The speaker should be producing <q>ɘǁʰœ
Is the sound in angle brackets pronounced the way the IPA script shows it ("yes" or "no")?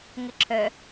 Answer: no